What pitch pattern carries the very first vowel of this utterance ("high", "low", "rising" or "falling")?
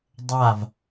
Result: falling